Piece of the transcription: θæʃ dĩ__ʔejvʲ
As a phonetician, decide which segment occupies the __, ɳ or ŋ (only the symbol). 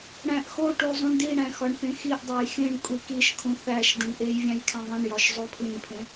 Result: ɳ